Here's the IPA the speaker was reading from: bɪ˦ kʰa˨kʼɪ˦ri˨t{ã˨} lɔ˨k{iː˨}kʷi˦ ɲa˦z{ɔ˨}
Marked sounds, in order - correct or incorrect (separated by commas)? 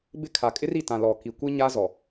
correct, incorrect, correct